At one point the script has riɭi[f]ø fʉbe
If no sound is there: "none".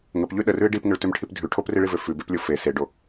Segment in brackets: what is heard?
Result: v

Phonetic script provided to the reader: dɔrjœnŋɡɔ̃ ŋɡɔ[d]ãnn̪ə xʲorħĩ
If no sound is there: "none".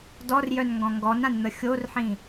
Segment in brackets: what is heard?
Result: n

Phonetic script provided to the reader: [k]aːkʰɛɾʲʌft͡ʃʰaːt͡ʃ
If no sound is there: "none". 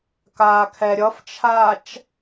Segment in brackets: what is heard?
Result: k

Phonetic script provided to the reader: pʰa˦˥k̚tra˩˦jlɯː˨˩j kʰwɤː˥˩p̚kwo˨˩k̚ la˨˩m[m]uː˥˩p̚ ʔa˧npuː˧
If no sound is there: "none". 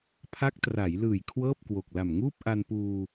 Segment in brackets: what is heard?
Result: ŋ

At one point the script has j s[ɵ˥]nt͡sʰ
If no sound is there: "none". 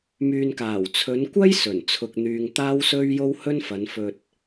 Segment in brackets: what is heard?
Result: ɵ˨˩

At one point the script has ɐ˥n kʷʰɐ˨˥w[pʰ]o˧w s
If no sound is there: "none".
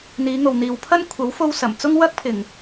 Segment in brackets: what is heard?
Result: f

